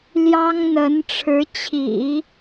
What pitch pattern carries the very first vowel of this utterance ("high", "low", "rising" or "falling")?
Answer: high